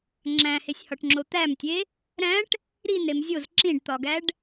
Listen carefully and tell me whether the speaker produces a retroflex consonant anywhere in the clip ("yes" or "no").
yes